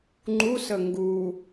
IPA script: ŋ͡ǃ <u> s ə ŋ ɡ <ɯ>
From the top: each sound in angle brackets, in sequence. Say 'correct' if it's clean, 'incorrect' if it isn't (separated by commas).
correct, incorrect